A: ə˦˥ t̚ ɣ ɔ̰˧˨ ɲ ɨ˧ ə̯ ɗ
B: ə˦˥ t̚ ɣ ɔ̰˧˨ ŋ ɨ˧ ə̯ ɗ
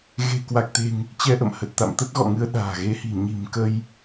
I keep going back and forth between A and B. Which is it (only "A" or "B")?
B